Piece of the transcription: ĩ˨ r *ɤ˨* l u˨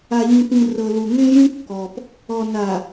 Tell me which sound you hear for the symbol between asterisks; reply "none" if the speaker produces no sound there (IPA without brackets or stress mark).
ɤ˨